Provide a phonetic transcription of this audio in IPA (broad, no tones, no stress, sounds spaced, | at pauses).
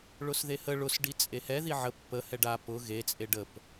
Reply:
ɭ ʊ s ð e h ə ɭ ʊ s ɖ i t͡sʼ e h ɛ ð i ʕ ə pː ə h ɛ ɖ a p ʊ ɣ e t͡sʼ e ɖ ə p